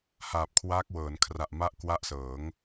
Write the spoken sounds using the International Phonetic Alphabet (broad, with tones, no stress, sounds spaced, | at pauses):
h aː˨˩ p̚ kʰ w aː˦˥ k̚ w ɤː˩˦ n kʰ r a˨˩ ʔ m a˦˥ ʔ k w a˦˥ ʔ s ɤː˩˦ ŋ